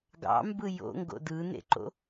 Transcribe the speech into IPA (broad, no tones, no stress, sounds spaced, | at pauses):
ɡ ɑ̰ m b ɯ j o̰ ŋ ɡ o̰ d ɯ n ḛ ǃ o̰